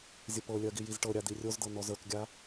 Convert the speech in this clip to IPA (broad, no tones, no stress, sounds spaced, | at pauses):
zʲ ə p ɤ lʲ ɜ ɡ i j i z ʈ ɤ ɾʲ a d̪ i rʲ o z d ɤ n̪ ɔ z ə˞ k ɡʲ a